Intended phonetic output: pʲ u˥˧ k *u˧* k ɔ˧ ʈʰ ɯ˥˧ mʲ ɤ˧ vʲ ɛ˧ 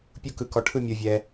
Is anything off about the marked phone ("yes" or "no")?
yes